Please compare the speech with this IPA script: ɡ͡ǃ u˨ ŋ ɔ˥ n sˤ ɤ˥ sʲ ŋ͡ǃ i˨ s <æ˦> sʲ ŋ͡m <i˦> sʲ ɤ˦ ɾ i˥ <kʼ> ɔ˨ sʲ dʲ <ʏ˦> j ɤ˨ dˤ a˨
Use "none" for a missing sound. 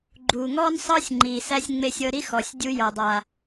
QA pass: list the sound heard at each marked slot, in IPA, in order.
æ˦, e˦, x, u˦

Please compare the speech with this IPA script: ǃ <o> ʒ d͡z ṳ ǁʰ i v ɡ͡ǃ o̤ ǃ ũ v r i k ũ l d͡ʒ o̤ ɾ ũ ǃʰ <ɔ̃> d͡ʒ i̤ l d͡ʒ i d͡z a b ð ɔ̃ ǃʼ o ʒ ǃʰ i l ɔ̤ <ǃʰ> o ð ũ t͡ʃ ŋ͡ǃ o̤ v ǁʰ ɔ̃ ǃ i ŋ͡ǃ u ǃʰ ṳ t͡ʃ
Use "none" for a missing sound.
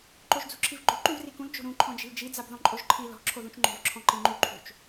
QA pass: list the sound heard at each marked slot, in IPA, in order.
o, ɔ̃, ǁʰ

